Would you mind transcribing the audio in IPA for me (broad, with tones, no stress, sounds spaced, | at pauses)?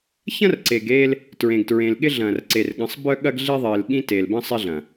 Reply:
ç ɐ̃˦ r ǀ e˨ ɡ eː˦ l | t ɹ ẽ˨ ɡ t ɹ ẽ˨ l ɠ ɪ˦ ɮ ɐ̃ː˨ r ǀ e˨ r ɠ ə̃˨˦ sˤ b œ˦ ɠ ɐ˦ ɡ ɮ i˦ ðˤ ɪː˨ l ɠ ĩ˦ t e˨ l b ə̃˦ sˤ ɪ˦ ɮ ɐ̃˨